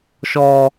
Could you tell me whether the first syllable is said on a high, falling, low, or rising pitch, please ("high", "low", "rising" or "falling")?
high